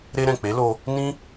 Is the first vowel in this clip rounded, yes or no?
no